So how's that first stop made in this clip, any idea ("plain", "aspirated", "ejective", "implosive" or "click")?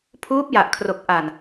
aspirated